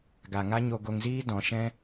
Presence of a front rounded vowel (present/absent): absent